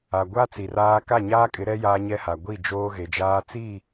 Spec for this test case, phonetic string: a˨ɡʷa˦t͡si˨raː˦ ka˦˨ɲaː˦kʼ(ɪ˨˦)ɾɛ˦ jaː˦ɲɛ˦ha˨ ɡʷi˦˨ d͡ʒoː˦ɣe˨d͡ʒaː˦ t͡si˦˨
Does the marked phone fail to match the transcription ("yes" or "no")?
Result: no